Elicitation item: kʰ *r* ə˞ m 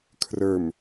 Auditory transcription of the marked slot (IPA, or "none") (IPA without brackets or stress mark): r